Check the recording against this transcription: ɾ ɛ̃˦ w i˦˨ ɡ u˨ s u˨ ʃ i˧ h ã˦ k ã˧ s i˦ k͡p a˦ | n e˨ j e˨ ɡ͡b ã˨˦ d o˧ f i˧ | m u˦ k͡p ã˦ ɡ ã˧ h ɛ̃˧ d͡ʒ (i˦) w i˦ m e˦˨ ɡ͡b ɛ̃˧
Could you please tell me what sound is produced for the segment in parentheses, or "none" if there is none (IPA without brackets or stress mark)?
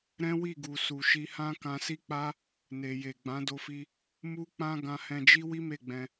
i˦